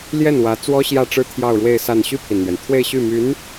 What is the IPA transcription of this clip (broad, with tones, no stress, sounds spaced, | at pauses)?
l j ɛ˥˩ n w ä˧˥ t͡s w ɔ˥ ɕ j ä˥˩ ʈ͡ʂ ɻ̩˥ t̪ʰ j ɑ˥˧ ʊ̯ ɻ w e˥˧ ɪ̯ s a˥˧ n ɕ y˥˩ pʰ i˩ n n̪ ɥ ɛ˩ n t̪ʰ w e˥˧ ɪ̯ ɕ y˥˩ m y˧˥ n